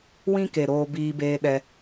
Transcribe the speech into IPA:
wĩ˧ke˨ ɾoː˧biː˧beː˧ ɗɛ˧

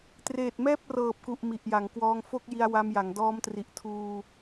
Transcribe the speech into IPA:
treː˨˩t̚mɛː˥˩p̚rɤː˨˩p̚ku˨˩ʔ mi˨˩ʔja˩˦ŋkwɔː˧ŋ fo˥˩k̚ji˧a̯ wa˧mja˩˦ŋ dɔː˦˥mtri˨˩ʔtʰuː˧

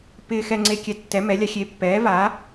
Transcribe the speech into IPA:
pɪː˨xɛ˨ŋ͡ǀe˨ kʲɛ˨tːɛ˩˥mɛ˩˥lʲa˩˥ xʲe˩˥pːɛː˩˥va˩˥

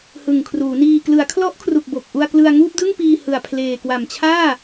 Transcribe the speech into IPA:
hɯ˨˩ŋkʰruː˩˦niː˧ klɯ˩˦a̯kʰlɔ˦˥ʔkʰru˨˩k̚ bo˨˩k̚ʔu˧a̯klɯ˧a̯ ŋuː˥˩p̚dɯ˥˩ŋpiː˧ hɯ˨˩a̯pʰleː˨˩ kwa˨˩mt͡ɕʰaː˥˩

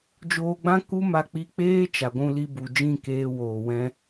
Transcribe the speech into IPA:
d͡ʒoː˧ɡ͡bã˦ ku˦ma˧k͡pi˧k͡peː˦ t͡ʃa˨ɡʷũ˧li˧bu˨ d͡ʒĩ˦˨keː˧ woː˨wɛ̃˦

